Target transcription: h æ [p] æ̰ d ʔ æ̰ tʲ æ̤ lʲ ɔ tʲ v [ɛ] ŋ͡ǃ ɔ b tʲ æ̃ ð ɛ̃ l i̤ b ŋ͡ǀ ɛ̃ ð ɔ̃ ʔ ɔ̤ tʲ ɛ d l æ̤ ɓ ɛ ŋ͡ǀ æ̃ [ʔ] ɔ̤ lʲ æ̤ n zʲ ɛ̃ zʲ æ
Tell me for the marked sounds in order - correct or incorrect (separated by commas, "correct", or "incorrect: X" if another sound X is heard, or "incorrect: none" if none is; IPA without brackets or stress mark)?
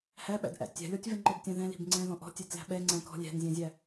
incorrect: ɓ, correct, incorrect: k